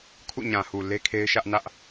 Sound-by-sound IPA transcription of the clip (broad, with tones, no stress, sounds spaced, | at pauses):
kʰ ṵ˦˨ ɲ ã˨ h u˨ l e˦ kʰ e˦ ɪ̯ ʃ ä˦ ʔ n ä˦ ʔ